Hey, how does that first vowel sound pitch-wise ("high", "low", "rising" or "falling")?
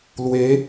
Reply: rising